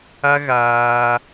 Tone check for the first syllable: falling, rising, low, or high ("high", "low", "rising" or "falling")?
high